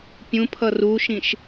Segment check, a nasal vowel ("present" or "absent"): present